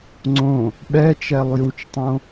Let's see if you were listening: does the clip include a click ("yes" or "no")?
yes